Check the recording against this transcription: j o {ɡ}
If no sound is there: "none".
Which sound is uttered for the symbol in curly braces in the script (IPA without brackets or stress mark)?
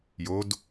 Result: d